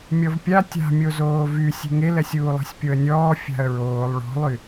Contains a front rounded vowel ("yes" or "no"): yes